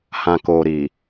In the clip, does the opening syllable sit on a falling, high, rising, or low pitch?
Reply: low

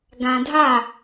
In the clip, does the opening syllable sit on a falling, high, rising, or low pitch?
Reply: low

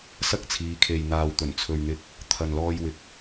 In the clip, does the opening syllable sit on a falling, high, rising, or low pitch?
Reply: high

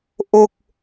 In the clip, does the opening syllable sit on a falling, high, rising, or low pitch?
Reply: falling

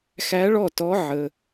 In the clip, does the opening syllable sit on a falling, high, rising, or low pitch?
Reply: rising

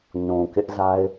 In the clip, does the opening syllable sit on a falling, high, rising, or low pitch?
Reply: low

